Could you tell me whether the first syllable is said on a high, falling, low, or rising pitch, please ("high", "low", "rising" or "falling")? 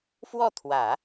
falling